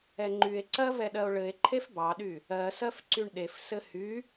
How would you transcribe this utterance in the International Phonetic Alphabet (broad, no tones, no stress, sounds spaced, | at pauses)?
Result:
ɛ ŋ͡ǃ y e̯ ǀ ɜ v ɛ ɗ ɜ o̯ ɭ ɘ e̯ ǃʰ e f b ɑ ɗ y | ɜ s ɜ f ǀ y ɳ ɗ e f s ɘ h y